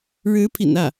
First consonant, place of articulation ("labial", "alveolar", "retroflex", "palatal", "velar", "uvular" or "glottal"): retroflex